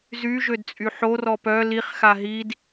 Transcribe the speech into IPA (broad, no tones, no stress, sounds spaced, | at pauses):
z y ʒ ø d t͡sʼ y ħ o r ɔ p œ l i χ x a ɦ i d